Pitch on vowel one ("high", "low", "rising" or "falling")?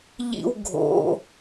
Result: high